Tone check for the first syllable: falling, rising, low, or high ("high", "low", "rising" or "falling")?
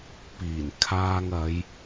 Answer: low